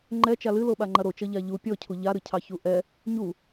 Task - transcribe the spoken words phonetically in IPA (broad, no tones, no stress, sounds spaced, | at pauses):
ŋ͡ǃ ɛ t͡ʃ a l ɨ l o ɓ a ŋ͡ǃ ɐ ɾ o t͡ʃ ʌ ʎ a ʎ u pʲ ɔ cʰ u ʎ a ɾ ɨ cʰ ɑ ç u ʔ ɛ | ɲ u